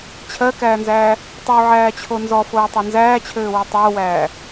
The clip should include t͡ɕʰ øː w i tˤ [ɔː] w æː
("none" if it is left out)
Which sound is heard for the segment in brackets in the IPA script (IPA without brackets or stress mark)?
oː